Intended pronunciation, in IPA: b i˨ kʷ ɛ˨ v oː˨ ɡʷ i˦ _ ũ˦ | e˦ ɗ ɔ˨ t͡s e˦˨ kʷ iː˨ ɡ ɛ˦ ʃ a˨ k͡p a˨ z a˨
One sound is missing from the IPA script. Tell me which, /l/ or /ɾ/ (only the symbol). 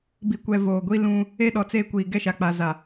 l